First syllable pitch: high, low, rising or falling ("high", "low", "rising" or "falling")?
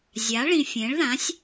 rising